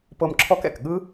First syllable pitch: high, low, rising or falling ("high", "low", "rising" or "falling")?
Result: high